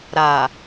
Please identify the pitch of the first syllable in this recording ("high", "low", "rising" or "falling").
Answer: low